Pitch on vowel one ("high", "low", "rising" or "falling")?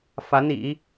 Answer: rising